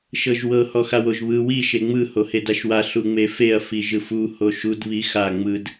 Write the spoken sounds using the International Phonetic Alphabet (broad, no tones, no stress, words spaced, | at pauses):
ʃɤʒwɤ hɔxawoʒβɯ wi ʃeŋ͡mɯ hohedaʃwa ɬuŋ͡mefeɐ̯ fiʒɯfu hoʃud βixa ŋ͡mɯd